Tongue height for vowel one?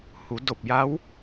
high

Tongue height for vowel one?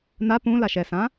low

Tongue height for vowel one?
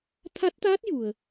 low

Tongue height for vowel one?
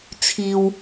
high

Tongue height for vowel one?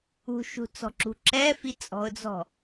high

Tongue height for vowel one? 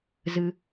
high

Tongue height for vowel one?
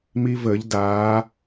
high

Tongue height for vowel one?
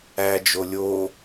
low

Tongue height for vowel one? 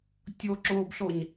mid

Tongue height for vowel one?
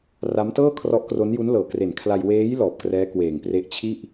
low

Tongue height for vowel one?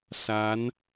low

